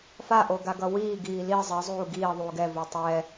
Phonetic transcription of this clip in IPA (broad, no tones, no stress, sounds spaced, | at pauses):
f a ʔ o ɡ a ɡ ʌ w iː ɡ iː l i zˤ i zˤ uː ɡ iː ðˤ uː ɡ ɛ v u tˤ ɛː